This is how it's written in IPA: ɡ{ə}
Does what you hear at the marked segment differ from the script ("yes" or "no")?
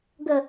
no